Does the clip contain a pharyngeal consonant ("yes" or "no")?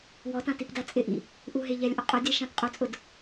no